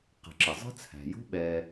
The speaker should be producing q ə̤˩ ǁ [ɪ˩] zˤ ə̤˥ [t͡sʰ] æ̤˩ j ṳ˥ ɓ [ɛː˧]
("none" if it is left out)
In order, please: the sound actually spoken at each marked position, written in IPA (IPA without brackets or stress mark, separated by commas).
ɪ˩, t͡sʰ, ɛː˧